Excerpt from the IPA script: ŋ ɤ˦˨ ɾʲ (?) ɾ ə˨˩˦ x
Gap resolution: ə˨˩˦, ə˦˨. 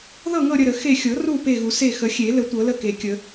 ə˦˨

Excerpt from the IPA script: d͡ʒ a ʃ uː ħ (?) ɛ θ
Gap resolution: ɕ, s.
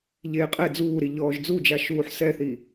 s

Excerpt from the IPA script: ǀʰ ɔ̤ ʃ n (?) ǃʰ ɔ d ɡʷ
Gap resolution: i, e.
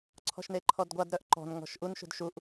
e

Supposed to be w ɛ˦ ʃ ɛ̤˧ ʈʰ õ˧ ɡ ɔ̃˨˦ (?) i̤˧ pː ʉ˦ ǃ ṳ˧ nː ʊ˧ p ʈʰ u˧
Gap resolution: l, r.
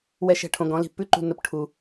l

